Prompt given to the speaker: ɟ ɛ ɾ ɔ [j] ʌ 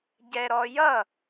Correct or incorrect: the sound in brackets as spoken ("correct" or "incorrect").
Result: correct